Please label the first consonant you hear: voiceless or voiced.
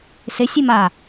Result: voiceless